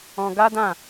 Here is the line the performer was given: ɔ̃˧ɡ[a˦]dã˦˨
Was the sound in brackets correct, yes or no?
yes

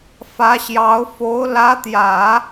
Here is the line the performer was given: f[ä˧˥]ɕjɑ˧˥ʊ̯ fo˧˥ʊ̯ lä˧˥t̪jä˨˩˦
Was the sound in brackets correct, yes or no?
yes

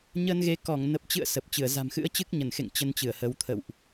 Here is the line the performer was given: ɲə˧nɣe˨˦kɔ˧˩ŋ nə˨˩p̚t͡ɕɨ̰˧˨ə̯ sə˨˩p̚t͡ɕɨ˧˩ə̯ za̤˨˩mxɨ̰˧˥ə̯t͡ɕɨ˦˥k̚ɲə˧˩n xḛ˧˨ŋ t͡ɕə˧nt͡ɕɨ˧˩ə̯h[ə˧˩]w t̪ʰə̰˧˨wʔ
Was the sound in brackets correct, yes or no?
no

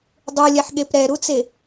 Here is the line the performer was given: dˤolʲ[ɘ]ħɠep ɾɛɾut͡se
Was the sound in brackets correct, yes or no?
no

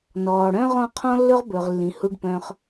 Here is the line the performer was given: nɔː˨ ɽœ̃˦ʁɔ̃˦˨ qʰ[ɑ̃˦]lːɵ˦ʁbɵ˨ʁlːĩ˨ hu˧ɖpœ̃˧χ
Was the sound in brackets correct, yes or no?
no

